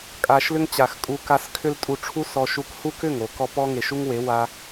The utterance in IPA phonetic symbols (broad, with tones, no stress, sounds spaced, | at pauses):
kʼ a˧ ʃ l ʏ˦ ŋ t͡ɕ a˨ x kʼ u˧ k a˧ s kʰ ʏ˦ l tʼ u˧ ʈ͡ʂʰ u˦ s ɔ˧ ʃ u˧ k h u˦ k ʏ˦˨ ŋ o˨ k ɔ˧ p ɔ˦ ŋ e˨ ʃ u˦ ŋ w e˨˦ w a˧